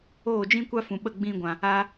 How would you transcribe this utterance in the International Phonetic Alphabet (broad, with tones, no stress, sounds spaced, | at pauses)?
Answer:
oː˦˨ d͡ʒ ĩ˦ kʷ a˦ f ũ˨ ɓ ə˦˨ ɡ͡b ĩ˧ ɡʷ ã˨ | a˧